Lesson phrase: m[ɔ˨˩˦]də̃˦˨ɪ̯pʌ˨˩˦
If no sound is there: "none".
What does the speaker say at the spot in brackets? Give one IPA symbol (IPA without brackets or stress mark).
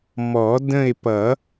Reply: ɔ˨˩˦